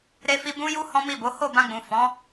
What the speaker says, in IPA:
ɾ e˧ f i˧ b ũ˦ j u˦ h ɔ̃˦ m i˦˨ b o˨˦ h o˦˨ b ã˧ ɡ͡b ũ˨ f ɔ̃˨˦

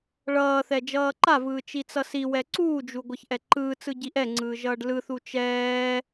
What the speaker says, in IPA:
ɭ ʌː θ ɛ d͡ʒ ʌː ǃ a v ɯː t͡ʃ i t͡s ʌ s i w ɛ ǀ uː d͡ʒ u ɡʷ ʌ ç ʔ ɛ ǃ ɯː t͡s ɯ ɟ i ʔ ɛ ŋ͡ǀ ɯː ʒ ʌː ɖ l ɯ θ u t͡ʃ ɛː

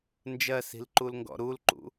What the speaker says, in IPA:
n d͡ʒ ɜ s i̤ l ǃ u l ŋ ɡ ɔ̰ ɾ u l ǃ ṵ

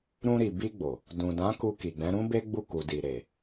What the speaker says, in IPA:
ɾ ũ˧ ɾ i˨ b i˧ ɡ͡b o˨ | d ũ˨ d ã˨˦ k u˧ k i˨ ɡ͡b ɛ̃˨˦ ɾ ũ˦ b e˦ ɡ͡b u˦˨ k u˨ d i˨ ɾ e˨

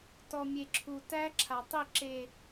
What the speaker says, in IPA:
t ɔ˨ mʲ e˨ ǁʰ u˨ t æ˦˥ ǁʰ a˨ tˤ i˥˧ ǁ e˥˧

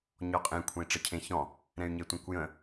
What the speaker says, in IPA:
ɲ ɔ qʼ ẽ kʷʰ ẽ i̯ ʈ͡ʂ ə cʰ ẽ ç ɔ̃ | ɾ ɛ̃ y̯ ɲ e tʷ ɛ̃ kʷ j ə̃

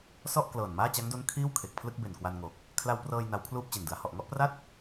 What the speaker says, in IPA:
s ɔ˥˩ ʔ k l ɤː˨˩ n m aː˥˩ t͡ɕ a˦˥ ŋ d o˦˥ n kʰ iː˥˩ w kʰ e˨˩ k̚ pʰ l ɯ˥˩ k̚ b e˨˩ n k w a˧ n ŋ o˨˩ k̚ | kʰ l a˧ w p r ɤː˧ j n a˦˥ w kʰ l uː˥˩ p̚ t͡ɕ e˨˩ n d ɯ˩˦ a̯ h ɔ˨˩ ʔ ŋ ɔ˥˩ ʔ p r a˥˩ t̚

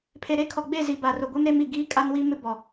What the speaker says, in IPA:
pʰ e˨ ɾ e˦ kʰ ɔ˨ ɡ͡b e˦˨ z i˨ b a˨ r ʊ˨ ɡʷ e˦ m ɾ e˦ m i˨ ɡ iː˦ kʼ a˦ n w i˦ m ɪ˦ b ɔ˨

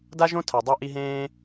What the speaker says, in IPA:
d a˥ ʒ õ˥ tʰ a˨ dˤ o˥ ʔ i˦ ɦ ẽː˥

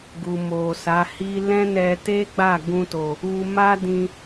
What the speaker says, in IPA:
ɡ u˨ m o˨ s a˨˦ h i˦ l ɛ̃˦ n ɛ˧ t e˦ ɡ͡b a˦˨ ɡ ũ˧ t o˨ | u˧ m a˦ d ĩ˧

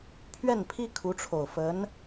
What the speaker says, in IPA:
pʰ ɥ ɛ˥˩ n pʰ i˥ kʰ u˧˥ ʈ͡ʂʰ o˨˩ ʊ̯ f ə˧˥ n

